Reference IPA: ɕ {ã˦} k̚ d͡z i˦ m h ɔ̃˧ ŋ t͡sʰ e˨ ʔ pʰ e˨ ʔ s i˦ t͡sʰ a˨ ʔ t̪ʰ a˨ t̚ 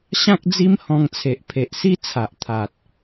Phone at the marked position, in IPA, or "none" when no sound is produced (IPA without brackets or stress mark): ã˦